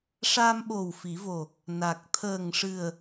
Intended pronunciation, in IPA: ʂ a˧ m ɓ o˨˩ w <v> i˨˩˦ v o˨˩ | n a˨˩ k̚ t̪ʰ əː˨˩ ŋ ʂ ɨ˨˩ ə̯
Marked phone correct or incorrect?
incorrect